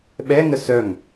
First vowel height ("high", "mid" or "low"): mid